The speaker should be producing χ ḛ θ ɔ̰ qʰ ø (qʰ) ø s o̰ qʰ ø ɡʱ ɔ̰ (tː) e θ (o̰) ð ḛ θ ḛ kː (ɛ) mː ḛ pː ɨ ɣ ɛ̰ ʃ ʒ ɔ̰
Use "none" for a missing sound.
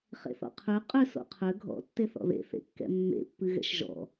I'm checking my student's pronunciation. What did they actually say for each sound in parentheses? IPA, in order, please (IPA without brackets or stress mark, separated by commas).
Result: qʼ, tː, ɔ̰, ɛ̰